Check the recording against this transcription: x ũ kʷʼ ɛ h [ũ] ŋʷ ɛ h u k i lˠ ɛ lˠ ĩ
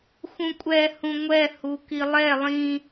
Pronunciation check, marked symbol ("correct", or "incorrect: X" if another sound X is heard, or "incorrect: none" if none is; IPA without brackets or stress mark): correct